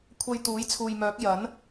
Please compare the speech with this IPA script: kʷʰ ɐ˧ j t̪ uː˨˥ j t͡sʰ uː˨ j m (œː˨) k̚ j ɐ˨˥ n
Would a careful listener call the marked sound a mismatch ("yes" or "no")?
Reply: yes